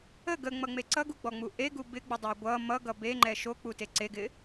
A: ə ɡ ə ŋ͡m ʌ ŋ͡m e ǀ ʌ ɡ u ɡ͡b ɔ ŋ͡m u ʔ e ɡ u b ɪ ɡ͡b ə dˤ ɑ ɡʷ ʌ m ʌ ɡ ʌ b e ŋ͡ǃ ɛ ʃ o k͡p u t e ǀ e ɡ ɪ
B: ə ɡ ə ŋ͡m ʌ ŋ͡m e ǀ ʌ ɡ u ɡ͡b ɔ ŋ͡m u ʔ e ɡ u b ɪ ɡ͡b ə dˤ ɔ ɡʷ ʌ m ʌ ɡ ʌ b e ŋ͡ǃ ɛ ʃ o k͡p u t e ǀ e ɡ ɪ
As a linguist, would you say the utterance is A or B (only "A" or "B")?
A